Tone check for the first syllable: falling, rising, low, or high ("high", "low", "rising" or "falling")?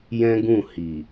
high